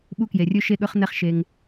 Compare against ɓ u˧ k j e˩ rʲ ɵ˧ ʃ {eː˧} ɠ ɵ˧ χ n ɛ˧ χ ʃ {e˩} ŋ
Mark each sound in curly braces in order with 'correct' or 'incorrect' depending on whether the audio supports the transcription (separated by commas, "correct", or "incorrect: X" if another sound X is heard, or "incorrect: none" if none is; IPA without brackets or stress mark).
incorrect: e˧, correct